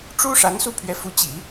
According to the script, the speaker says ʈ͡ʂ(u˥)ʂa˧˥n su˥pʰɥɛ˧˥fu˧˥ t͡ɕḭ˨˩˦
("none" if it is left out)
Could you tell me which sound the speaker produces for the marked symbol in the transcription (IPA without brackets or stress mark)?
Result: u˥